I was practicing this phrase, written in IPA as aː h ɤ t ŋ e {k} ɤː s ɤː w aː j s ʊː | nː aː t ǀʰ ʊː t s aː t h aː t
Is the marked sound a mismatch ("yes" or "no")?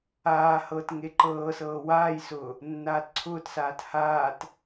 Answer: yes